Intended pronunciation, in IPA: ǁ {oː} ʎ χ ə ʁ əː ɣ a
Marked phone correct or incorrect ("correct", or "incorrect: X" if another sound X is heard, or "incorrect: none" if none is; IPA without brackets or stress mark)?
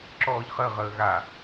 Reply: incorrect: ɔː